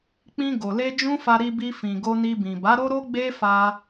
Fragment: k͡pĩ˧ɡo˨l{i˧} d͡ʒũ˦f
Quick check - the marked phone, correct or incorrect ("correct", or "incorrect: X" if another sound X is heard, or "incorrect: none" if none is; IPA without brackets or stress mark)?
incorrect: e˧